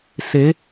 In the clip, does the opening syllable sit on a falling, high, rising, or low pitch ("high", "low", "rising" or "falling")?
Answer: rising